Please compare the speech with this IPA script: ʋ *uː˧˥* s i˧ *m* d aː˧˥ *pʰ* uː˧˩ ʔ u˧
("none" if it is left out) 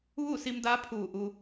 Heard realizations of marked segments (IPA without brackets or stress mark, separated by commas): uː˥˨, m, pʰ